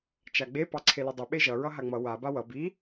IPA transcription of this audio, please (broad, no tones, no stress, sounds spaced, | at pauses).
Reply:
t͡ʃ a ɡ͡b e p ɑ ǀʰ e l i dˤ y ɓ e ʒ ʌ ɹ ʌ ɦ a ŋ͡m ʌ w a b a w ʌ b i